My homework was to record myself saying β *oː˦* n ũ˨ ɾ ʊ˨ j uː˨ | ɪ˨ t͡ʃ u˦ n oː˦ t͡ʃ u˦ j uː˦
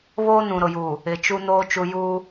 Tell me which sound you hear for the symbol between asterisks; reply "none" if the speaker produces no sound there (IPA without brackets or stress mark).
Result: oː˦